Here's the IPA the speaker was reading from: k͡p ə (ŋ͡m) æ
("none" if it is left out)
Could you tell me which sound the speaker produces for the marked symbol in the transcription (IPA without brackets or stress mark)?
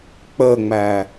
ŋ͡m